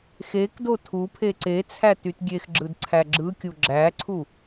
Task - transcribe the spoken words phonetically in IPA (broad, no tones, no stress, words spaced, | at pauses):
xekdo tʰupʰe ǀet͡sʰæ tytɡʲexɡ͡ǁɯd ǀʰæɡ͡ǁɯkʲu ɡ͡ǁæǀʰu